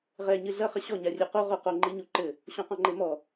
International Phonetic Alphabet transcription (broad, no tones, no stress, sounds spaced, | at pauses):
ʁ ɛ ɲ ɨ ɮ ɐ χ ɘ ɕ ɔ ɲ a rʲ e q o ʁ o q o ŋ͡ǃ i ɲ u ǃ ɘ | ɕ ɔ̃ q ɔ̃ ŋ͡ǃ e m ɔ